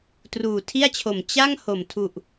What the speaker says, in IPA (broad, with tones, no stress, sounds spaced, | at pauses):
t r uː˨˩ tʰ i˥˩ a̯ t͡ɕʰ o˨˩ m t͡ɕ a˥˩ ŋ h o˨˩ m tʰ u˨˩ ʔ